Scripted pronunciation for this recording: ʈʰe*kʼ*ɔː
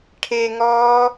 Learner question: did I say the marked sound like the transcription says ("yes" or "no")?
no